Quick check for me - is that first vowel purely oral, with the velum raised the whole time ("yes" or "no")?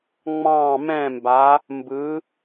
no